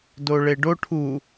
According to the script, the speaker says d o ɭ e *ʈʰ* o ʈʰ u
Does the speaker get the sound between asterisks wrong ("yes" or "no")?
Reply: yes